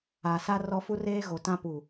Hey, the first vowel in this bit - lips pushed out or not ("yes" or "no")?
no